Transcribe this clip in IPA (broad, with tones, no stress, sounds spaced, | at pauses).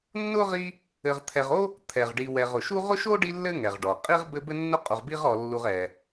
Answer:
nː ʊ˥ ʁ i˦ | ɘ˨ ʁ t̪ʰ ɛ˨ ʁ o˥ | t̪ʰ ɛ˩ ʁ ɖ i˨ w ɛ˨ ʁ ʊ˩ ʃ u˦ ʁ ʊ˥ ʃ o˥ ɖ i˦ lː ɘ˦ ŋ ɛ˩ ʁ ɖ ɔ˩ qʼ i˥ ʁ b ɘ˦ b ɘ˦ nː ʊ˦ qʼ u˨ ʁ b i˥ ʁ ɔ˨ lː u˨ ʁ ɛ˩